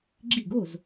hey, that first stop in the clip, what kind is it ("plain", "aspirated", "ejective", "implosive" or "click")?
click